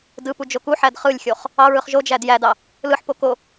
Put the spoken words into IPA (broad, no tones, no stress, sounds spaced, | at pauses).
d ɯ p u d͡ʒ o k u ħ æ d χ ɯ lʲ xʲ o χ | ɑ ɹ ɯ χ ʒ o d͡ʒ æ d j æ d ɑ | l ɯ ħ p o k o